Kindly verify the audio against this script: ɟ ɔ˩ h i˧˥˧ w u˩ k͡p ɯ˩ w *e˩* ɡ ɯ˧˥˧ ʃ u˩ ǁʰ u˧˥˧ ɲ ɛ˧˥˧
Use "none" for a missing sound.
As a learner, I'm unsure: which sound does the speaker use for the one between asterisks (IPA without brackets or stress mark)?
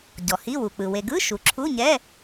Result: e˩